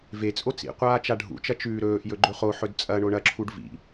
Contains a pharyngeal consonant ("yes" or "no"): yes